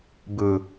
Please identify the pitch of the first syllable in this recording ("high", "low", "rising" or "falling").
low